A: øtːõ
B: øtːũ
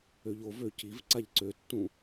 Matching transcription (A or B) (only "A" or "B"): B